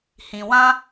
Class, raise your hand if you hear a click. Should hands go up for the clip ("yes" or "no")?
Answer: no